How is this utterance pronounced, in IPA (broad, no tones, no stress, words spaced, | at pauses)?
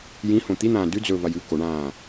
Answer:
jĩhõ t̪in̪ãː dʉ d͡zɵvaj ʉ koɳãː